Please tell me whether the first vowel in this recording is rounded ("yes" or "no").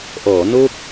yes